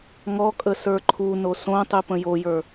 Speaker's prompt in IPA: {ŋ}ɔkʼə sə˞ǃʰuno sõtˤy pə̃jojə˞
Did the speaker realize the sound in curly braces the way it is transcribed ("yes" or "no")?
yes